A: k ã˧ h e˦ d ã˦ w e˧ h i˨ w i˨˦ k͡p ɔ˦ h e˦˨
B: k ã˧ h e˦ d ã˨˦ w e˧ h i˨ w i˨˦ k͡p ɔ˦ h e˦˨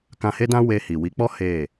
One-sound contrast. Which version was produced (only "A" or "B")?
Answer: A